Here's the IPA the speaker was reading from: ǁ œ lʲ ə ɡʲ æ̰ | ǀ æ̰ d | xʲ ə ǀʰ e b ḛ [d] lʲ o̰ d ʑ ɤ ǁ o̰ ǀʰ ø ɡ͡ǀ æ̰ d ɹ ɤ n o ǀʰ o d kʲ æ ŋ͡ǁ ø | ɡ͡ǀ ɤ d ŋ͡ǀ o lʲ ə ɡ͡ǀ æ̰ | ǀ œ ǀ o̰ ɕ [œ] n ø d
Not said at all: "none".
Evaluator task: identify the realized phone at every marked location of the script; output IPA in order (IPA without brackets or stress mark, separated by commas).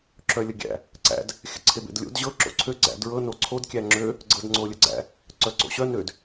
d, œ